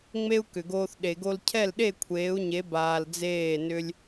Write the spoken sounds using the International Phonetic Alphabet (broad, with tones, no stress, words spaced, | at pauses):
ŋ͡me˦u̯kʏ˨ɡoː˧θ ɗe˨ɡo˧l cʰɛ˦˨lɗe˦˨kʷʰeː˨˦u̯ɲe˨˦ baː˧ld͡zeː˦˨nʏ˦lʲ